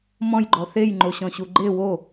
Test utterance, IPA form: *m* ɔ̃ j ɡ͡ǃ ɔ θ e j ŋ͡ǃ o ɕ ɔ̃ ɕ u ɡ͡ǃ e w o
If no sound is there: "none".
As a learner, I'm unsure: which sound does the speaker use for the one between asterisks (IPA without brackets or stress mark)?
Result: m